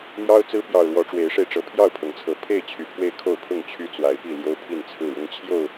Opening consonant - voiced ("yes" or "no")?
yes